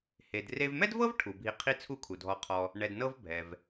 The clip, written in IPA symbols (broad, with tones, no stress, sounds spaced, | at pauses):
h e˧ d r e˧ v m ɛ˥ d v ɤ˥ v ʈʰ u˩ bʱ i˧ qʰ i˥ t͡sʰ u˥ kʰ u˩ dʱ ɔ˧ qʰ ɔ˧ | ɳ ɛ˧ d n ɤ˥ v bʱ ɛ˩ v